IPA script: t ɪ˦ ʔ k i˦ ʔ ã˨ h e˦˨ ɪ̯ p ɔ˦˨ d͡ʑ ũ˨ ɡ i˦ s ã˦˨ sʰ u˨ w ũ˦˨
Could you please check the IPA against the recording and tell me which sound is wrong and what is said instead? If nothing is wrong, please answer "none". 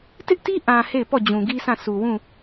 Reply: k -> t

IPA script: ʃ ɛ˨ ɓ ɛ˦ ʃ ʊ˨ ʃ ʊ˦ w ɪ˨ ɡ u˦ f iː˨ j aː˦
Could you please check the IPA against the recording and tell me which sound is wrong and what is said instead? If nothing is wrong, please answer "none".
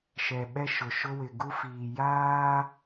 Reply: none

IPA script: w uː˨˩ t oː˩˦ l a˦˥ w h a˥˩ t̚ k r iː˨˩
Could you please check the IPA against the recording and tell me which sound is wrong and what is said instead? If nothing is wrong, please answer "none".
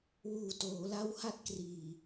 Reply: none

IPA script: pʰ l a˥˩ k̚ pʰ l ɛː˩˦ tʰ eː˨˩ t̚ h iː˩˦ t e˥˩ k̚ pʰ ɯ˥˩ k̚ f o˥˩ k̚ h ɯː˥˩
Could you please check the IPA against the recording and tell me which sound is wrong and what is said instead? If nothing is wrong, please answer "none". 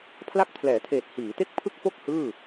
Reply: none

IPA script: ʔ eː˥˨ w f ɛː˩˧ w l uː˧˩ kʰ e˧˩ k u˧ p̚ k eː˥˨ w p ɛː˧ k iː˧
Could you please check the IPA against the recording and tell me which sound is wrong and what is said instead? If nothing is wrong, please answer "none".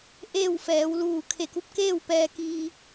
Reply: none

